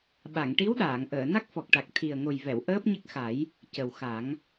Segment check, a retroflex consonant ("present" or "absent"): present